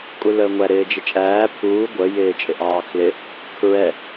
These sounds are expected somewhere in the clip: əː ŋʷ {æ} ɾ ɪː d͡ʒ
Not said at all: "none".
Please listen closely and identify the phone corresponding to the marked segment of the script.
æ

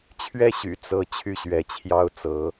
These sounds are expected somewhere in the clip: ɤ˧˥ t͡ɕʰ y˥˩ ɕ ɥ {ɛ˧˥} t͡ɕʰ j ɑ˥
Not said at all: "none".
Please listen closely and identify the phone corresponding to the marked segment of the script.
ɛ˧˥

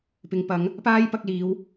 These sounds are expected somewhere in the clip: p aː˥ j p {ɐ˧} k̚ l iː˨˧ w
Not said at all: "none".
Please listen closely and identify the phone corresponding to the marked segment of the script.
ɐ˧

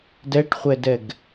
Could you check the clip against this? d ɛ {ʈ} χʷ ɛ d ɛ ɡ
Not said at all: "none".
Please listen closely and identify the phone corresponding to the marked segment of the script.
ʈ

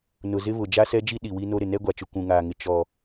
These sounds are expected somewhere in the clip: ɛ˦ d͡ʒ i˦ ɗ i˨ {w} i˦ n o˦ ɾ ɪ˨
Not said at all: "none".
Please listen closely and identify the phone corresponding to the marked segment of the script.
w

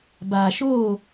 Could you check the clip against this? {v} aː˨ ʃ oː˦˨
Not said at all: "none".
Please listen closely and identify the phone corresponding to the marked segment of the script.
b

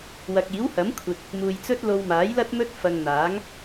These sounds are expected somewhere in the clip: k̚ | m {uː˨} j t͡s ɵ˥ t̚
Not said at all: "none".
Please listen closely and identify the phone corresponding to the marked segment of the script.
uː˨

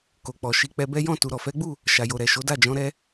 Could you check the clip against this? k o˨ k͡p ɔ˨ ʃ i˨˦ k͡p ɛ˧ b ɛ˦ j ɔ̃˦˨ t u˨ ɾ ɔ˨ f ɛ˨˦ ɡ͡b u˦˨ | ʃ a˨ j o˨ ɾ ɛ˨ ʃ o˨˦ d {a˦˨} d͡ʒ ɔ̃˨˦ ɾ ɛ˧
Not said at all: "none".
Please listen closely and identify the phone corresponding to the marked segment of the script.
a˦˨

